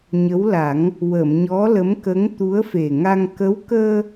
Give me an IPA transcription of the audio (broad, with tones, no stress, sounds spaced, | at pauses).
ɲ ə˧˥ w l a˨˩˦ ŋ | w ə˨˩˨ m ɲ ɔ˧˥ l ə˧˥ m k ə˧˥ ŋ t̪ u˧˥ ə̯ f e˨˩ ŋ a˧ ŋ k ə˧˥ w k əː˧